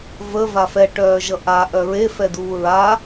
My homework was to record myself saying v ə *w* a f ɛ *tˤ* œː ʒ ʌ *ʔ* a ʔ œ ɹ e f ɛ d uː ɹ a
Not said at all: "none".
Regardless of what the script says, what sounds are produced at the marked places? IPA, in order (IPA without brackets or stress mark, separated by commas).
v, ʈ, ʔ